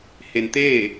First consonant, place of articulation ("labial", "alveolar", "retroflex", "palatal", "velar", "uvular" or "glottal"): glottal